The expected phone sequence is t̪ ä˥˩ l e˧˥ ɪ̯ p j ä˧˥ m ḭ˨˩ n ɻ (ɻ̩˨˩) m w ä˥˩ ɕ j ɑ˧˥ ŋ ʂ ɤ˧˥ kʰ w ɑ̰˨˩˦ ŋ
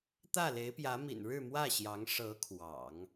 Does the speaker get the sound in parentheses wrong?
yes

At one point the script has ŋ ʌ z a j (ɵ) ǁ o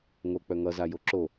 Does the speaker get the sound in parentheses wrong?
yes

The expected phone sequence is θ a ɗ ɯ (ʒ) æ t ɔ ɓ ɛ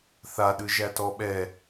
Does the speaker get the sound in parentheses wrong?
no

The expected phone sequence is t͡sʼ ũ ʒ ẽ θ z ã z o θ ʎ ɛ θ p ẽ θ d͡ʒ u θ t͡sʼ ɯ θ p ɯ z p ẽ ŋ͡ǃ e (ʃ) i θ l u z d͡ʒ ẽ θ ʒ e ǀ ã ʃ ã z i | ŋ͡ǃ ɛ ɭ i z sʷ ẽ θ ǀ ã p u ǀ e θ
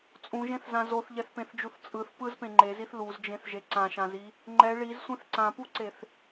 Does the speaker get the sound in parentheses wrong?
yes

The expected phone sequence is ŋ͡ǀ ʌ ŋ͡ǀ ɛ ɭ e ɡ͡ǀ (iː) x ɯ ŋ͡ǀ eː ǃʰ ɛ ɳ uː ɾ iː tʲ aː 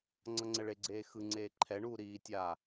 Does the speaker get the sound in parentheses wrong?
yes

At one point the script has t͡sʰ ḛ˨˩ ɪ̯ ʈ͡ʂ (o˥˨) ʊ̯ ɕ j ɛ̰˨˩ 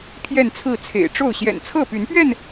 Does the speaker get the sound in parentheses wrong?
no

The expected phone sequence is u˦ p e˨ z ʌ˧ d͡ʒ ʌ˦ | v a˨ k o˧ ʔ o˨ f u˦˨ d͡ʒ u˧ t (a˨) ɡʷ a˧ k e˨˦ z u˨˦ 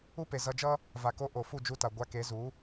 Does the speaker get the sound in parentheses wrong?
no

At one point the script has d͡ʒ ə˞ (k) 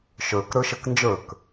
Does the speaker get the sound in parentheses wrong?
no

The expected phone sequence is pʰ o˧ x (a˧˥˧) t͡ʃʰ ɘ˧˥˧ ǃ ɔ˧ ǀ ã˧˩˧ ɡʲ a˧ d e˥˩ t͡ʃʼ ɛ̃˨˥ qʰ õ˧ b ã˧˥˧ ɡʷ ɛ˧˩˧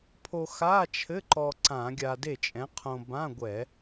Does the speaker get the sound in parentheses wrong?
no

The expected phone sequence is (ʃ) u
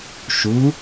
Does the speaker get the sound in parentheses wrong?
no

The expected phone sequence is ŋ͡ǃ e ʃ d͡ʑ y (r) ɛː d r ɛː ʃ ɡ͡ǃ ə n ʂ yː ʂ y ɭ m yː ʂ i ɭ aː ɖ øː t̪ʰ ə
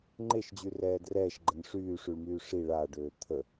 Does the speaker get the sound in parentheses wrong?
no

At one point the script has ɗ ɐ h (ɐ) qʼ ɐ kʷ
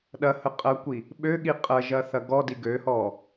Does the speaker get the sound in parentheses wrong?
yes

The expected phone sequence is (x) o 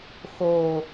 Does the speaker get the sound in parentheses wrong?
no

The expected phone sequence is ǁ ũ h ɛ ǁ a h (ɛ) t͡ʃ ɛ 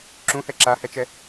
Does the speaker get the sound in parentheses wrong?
no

